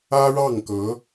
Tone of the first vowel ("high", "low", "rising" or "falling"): high